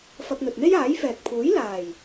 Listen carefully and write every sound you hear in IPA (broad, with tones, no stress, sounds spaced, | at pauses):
f ɐ˧ k̚ n̪ ɵ˨ t̚ n̪ e˥ j aː˨˥ j f ɛː˨ k̚ pʰ uː˨˥ j l aː˨˩ j